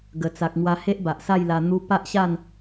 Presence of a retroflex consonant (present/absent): absent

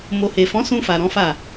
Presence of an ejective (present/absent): absent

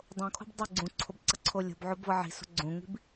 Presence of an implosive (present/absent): absent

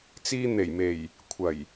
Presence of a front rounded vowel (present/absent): absent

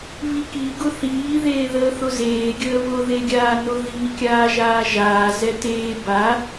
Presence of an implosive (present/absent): absent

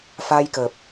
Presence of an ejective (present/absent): absent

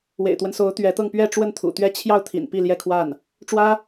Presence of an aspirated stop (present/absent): present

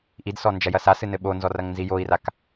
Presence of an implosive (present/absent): present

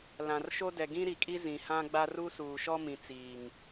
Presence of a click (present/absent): absent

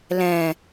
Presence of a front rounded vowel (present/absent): absent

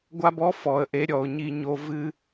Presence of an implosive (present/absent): absent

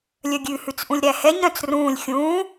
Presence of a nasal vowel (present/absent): present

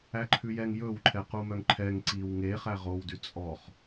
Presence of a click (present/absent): present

